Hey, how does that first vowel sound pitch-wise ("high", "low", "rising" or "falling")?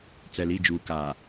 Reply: low